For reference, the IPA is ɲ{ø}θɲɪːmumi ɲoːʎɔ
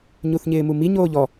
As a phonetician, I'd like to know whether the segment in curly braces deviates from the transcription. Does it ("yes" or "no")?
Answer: yes